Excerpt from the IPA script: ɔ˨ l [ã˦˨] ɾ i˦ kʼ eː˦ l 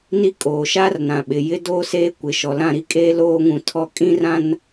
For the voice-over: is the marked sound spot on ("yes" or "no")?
yes